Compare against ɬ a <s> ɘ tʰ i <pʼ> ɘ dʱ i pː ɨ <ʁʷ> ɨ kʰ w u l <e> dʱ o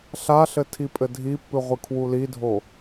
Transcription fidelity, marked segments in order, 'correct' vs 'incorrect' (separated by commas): incorrect, correct, correct, incorrect